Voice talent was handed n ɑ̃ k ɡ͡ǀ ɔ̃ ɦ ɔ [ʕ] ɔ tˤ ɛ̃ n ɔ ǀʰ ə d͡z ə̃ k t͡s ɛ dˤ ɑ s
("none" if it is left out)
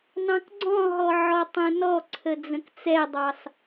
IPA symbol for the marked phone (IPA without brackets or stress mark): ʕ